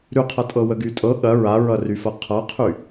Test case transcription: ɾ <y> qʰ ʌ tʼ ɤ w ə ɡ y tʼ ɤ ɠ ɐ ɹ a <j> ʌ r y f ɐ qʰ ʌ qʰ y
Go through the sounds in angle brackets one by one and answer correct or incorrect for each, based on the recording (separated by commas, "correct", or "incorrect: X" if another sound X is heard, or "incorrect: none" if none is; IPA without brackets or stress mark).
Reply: correct, incorrect: ɹ